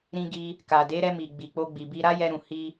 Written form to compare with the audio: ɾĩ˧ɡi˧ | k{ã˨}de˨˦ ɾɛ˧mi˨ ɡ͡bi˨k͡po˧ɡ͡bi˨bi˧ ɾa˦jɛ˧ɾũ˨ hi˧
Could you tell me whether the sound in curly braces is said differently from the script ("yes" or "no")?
yes